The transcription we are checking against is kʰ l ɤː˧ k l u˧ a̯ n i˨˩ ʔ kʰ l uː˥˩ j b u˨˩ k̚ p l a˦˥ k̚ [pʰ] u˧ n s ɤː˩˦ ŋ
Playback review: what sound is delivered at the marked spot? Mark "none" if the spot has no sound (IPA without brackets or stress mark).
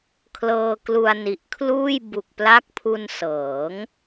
pʰ